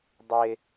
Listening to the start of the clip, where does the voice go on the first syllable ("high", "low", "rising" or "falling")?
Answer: high